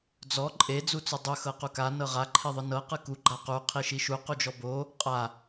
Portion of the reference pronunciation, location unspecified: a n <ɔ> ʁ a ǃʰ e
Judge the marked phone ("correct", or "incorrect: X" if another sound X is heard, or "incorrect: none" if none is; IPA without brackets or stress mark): incorrect: ɤ